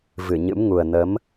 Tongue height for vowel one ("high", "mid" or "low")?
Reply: high